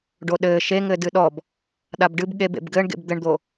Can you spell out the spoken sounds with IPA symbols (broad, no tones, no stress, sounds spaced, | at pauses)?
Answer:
ɖ o ɗ ɘː ʃ e ŋ ɘ d ɨ ɗ ɔ b | ɗ a b ɖ ɨ b ɠ e b ḛ b ɡ ɘː ɳ ɡ ḛ b d̪ ɘ ɳ d̪ o